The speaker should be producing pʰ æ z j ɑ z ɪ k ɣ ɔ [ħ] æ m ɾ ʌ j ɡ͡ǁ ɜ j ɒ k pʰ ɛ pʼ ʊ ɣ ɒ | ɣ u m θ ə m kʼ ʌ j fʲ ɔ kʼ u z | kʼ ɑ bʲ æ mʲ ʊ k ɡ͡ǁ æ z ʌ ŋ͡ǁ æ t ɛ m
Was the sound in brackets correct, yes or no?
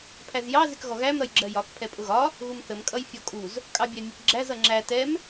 no